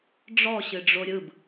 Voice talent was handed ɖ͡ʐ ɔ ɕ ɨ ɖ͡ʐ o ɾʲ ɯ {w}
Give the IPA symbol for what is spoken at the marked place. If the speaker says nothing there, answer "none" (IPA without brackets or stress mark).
b